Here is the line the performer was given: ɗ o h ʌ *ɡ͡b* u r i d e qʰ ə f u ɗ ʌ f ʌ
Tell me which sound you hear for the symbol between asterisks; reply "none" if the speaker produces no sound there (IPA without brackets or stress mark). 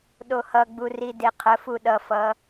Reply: ɡ͡b